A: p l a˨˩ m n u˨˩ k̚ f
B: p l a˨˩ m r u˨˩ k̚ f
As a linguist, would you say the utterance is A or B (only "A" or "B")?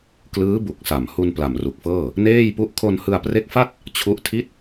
B